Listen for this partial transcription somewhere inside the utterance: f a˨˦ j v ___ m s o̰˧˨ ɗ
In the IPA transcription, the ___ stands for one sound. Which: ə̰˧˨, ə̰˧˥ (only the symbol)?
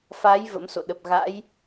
ə̰˧˥